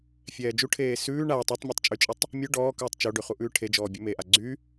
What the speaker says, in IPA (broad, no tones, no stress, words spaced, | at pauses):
fʲɛːd͡ʒuʈʰeː sʉː ɳa tˤɛtˤmʲotˤ t͡ʃʼyt͡ʃʼetˤ | mʲʉ ɖɔːkʉːtˤ t͡ʃoɖʉ χuʔʉːʈʰed͡ʒɔː bʲʉmeʔa ɡ͡ǀy